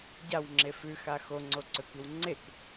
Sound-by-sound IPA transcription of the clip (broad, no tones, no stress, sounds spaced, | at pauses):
ɟ a w ŋ͡ǁ e f ʉ x a x o ŋ͡ǀ o ǀ ɵ k i w ŋ͡ǀ e k